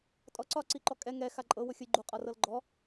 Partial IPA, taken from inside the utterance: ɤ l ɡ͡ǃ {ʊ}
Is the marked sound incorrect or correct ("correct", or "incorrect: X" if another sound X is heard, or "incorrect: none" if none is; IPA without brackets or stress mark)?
incorrect: ɔ